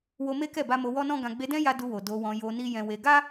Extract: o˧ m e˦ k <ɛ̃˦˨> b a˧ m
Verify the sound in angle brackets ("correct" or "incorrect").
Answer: incorrect